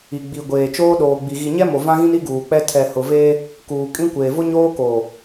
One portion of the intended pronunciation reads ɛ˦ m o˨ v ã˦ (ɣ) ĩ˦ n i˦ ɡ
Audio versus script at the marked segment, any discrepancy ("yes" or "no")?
no